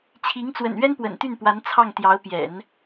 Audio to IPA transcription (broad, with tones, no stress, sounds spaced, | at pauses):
t͡ɕʰ i˧˥ ŋ t͡s w ə̰˨˩ n ɥ ɛ˥ n p w ə̰˨˩ n t̪ y˥˩ n p w a˧˥ n t͡sʰ ɑ˥˩ ŋ t̪ j ɑ˧˥ ʊ̯ p j ɛ̰˨˩˦ n